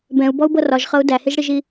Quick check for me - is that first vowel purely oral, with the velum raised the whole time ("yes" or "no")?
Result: no